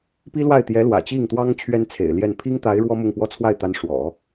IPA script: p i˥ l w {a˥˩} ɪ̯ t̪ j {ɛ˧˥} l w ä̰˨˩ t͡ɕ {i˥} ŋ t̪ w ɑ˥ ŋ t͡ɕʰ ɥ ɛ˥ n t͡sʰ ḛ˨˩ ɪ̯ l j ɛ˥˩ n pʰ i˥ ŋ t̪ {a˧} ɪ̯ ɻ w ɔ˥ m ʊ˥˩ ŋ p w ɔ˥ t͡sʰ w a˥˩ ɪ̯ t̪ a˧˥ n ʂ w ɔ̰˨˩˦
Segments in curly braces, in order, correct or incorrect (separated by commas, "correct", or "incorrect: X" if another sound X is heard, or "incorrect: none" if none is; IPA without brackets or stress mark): correct, correct, incorrect: i˥˩, incorrect: a˧˥